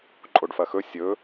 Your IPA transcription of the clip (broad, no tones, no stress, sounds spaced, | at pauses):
ǃʼ o ɖ f ɐ x ɵ sʲ ɵ